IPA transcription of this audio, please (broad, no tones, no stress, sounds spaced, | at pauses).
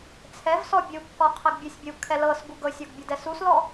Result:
t͡sʰ ɛ v s ɔ bʲ u kː ɔ qʰ ɛ ɡ bʲ u sʲ bʲ u kʰ ɛ l ɤ s ɡ u ɡ ɤ sʲ ɔ ɡ bʲ ɤ d ɛ s u s l ɔ